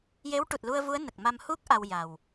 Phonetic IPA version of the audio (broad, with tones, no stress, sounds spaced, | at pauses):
j e˧˥ w ʈ u˨˩ t̚ l u˧ ə̯ v u˧˥ ə̯ n ə˨˩ k̚ m a˧ m h u˦˥ k̚ ʔ a˧ w j a˨˩ w